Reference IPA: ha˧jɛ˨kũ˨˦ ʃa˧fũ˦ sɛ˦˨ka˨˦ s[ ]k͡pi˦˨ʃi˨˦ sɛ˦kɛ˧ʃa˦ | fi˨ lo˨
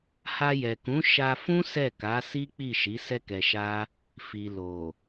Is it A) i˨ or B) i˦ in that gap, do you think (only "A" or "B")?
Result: B